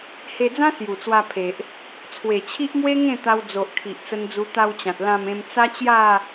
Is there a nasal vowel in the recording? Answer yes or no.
yes